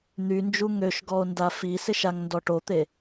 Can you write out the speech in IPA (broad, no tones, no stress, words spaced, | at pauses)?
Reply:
n̪ynd͡ʒu ŋøʃ ɡɔo̯ndafisɪʃ aŋndɔʈot̪e